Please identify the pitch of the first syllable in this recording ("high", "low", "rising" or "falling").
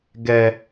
high